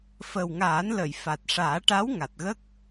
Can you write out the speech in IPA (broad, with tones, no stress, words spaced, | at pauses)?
fə˨˩wŋaː˨˩˦nlə˨˩˨j fa˨˩t̚ʂaː˨˩˦ʈa˧˥w ŋa˨˩t̚ɣə˦˥k̚